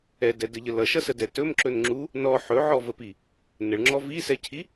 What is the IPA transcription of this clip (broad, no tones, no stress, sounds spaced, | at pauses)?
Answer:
ɛ d ɛ d ə ʎ ə l ʌ ʃ ʌ s ə d ɛ t ɵ m ǁ ɵ n ŋ͡ǁ u | n ɔ ħ ɵ ʕ ɔ v ə p i | n ə ɭ ŋ͡ǁ ɔ v i s ɛ cʰ i